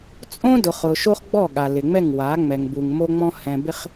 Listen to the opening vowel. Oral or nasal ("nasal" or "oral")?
nasal